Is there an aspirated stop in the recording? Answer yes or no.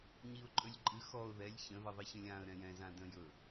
no